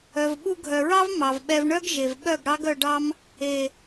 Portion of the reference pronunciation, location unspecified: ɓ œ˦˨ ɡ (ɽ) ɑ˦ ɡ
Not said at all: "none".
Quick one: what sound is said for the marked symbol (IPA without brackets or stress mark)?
ɽ